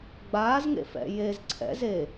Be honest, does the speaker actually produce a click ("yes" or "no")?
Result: yes